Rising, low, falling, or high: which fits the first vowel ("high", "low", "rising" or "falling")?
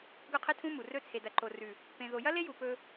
falling